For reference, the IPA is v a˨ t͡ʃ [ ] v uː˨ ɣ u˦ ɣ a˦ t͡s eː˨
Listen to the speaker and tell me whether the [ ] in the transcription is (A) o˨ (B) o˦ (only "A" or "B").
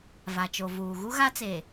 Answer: A